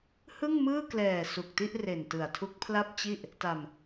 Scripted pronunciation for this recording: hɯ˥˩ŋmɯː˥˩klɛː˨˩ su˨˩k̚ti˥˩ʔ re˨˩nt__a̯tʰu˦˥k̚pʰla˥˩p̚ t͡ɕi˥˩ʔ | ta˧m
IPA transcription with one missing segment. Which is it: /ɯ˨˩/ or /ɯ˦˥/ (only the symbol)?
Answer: ɯ˨˩